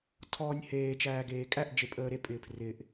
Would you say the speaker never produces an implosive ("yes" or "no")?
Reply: yes